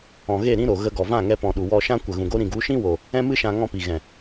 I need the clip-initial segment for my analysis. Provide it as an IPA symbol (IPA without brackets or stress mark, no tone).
ɔ̃